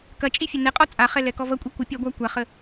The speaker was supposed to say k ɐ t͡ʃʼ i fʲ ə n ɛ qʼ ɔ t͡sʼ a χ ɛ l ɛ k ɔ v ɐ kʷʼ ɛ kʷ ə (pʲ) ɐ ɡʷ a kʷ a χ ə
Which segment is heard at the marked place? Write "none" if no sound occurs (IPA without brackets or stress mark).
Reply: pʲ